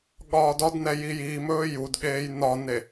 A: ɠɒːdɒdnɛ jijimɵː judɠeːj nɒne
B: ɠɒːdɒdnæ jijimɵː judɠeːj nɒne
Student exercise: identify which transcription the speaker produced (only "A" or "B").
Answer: A